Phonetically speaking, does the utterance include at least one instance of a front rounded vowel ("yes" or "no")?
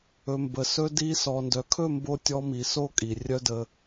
yes